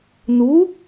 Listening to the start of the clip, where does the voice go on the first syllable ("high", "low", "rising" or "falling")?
rising